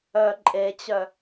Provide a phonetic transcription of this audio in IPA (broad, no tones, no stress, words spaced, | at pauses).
œ ǃʼet͡ɕœ